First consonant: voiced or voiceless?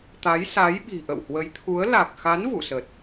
voiceless